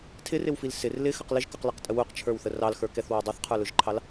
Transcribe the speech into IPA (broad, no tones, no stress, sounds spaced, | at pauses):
tʰ ɪ r ɪ w f i l s ɪ r l ɪ x ə q l ɪ ʒ k ʊ q l i q tʼ ə w u q t͡ʃʰ ə˞ w θ ə r ɑ l x ə˞ k ɛ θ w ə˞ dˤ u θ qʰ ə˞ l ʊ ʒ ǃʰ ɑ l